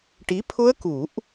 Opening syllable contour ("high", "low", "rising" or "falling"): rising